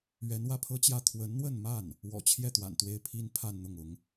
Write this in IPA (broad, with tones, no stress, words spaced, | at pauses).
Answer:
ɥɛ˧˥nwä˥˩pʰɤ˥t͡ɕjä˥˩ t̪ʰwə˧˥nn̪wə˥˧nma˥˩n | wɔ̰˨˩t͡ɕʰjɛ˥˩ t̪wa̰˨˩nt̪we˥ɪ̯pʰi˥n pʰa˥˧nn̪ʊ˥˩ŋʊ˧˥ŋ